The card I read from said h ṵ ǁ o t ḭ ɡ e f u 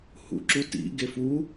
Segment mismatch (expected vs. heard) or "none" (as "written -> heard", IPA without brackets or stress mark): o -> u